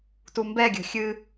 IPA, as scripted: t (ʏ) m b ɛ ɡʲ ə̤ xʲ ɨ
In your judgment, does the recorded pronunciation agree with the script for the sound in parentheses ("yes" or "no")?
no